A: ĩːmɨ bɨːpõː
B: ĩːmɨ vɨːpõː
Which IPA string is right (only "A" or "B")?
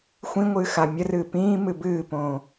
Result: A